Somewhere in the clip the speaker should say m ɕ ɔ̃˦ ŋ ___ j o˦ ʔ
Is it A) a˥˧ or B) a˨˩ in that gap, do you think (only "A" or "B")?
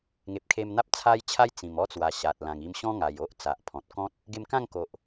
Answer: B